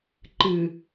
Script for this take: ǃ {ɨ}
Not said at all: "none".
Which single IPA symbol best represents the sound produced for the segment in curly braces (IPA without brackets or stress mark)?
ɨ